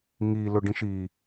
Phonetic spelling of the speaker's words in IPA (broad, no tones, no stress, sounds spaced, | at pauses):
ŋ i l ʊ ɖ ĩ ʃ i